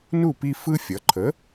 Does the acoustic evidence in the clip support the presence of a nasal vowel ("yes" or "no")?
no